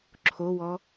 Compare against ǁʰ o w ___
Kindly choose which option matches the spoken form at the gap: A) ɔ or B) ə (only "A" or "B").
A